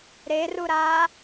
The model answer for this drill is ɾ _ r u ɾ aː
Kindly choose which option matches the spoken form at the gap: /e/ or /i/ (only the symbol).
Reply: e